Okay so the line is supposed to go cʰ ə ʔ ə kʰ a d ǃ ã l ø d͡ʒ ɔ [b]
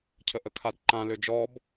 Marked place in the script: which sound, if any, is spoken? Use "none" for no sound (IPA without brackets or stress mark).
b